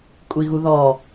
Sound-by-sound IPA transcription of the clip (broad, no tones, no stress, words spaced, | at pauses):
kʷʼiɣuðɔ